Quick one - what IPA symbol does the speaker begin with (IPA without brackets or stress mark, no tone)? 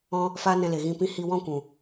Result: ɔ̃